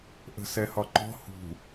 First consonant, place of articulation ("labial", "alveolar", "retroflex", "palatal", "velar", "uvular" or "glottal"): glottal